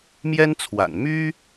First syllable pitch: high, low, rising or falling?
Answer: high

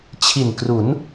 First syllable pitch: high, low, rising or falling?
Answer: low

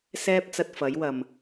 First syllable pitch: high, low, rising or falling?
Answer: high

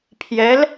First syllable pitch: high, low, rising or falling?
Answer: rising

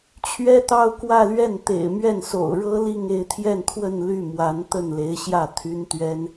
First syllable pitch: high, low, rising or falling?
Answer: high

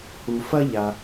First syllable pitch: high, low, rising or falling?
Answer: low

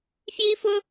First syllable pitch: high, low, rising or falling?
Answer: high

